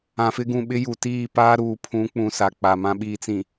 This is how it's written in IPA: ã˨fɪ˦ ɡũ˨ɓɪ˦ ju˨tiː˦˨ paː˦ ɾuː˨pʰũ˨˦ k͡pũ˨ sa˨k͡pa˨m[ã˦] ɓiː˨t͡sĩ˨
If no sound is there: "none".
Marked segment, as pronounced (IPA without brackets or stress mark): ã˦